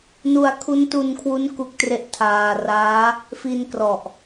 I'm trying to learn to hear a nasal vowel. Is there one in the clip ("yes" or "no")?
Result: no